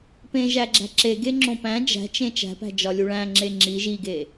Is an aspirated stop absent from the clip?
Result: yes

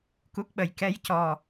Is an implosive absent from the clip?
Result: no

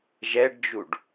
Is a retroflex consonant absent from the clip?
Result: no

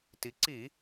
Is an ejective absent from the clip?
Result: yes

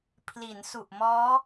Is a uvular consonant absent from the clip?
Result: yes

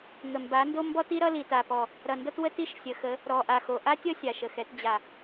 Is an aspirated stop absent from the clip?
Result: yes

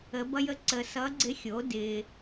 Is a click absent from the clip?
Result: no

